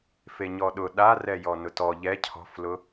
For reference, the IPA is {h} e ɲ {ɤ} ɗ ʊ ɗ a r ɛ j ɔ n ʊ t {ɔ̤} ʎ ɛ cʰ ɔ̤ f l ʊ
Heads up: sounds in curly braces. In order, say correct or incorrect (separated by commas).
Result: incorrect, incorrect, incorrect